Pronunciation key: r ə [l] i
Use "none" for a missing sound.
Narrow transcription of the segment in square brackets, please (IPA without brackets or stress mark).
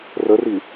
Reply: r